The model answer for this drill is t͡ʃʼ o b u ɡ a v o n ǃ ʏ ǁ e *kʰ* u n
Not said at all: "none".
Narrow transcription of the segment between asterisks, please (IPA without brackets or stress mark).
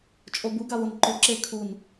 kʰ